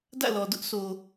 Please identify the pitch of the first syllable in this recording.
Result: falling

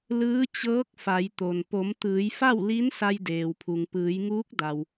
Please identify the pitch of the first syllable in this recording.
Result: rising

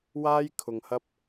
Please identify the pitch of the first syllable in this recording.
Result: high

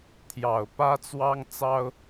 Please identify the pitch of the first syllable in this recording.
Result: low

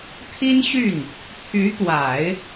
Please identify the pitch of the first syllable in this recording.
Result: high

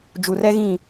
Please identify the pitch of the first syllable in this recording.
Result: low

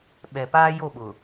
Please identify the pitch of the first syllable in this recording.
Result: low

